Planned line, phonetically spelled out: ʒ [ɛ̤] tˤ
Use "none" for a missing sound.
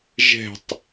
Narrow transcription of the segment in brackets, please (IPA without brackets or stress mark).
ɛ̤